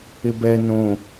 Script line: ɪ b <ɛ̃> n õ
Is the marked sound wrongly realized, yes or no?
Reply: yes